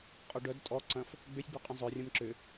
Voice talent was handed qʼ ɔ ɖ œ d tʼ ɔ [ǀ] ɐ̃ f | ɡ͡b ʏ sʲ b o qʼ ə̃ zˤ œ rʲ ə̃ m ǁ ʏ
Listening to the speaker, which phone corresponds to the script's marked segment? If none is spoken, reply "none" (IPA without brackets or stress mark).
ǀ